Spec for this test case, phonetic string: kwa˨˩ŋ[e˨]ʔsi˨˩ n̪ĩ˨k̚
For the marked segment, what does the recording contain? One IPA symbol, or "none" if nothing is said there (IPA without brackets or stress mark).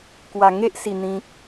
e˦